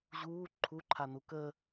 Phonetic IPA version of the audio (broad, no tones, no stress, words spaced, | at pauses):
ʑuː ǃʰuǃʰanu kə